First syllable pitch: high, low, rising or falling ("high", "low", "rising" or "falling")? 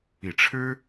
low